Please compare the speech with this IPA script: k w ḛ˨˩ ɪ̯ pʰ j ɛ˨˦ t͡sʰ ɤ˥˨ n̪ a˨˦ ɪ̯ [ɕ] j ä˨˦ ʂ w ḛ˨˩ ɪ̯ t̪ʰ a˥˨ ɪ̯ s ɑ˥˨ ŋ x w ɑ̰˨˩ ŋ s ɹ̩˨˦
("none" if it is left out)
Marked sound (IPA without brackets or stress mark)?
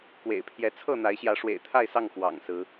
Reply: ɕ